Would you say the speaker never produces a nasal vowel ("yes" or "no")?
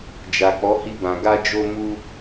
no